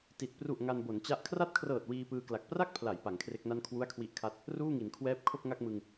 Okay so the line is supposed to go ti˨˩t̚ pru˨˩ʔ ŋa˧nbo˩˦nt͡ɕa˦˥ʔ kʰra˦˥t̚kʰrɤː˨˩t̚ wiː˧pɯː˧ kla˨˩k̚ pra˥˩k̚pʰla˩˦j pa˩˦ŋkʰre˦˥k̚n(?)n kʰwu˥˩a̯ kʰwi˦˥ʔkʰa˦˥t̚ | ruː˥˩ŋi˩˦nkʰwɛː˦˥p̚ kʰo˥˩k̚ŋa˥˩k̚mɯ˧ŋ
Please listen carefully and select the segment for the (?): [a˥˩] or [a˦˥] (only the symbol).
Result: a˥˩